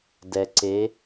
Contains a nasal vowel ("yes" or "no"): no